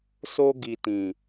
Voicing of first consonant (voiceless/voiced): voiceless